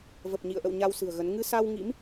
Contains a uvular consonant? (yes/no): no